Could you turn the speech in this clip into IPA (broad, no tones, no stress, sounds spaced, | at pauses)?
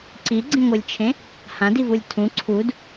ǀ i ɡ͡ǀ ĩ ŋʷ ɯ lʲ t͡ʃʰ ẽ | h ã d i v u lʲ tʰ ũ ǀʰ u d